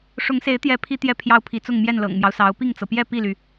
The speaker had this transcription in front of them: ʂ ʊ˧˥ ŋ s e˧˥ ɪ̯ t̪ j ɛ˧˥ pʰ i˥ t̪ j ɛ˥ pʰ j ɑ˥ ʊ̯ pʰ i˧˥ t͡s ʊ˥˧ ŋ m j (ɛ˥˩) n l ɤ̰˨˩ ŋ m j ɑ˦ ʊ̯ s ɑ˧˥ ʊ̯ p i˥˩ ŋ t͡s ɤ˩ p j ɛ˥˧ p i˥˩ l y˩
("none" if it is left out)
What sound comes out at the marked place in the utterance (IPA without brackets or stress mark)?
ɛ˥˩